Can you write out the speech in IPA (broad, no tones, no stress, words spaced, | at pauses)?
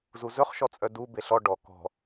zuzɵχʃɔt͡sʼœ du beɬɔ ɖɔ kɔ̤